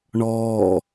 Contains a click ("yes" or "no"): no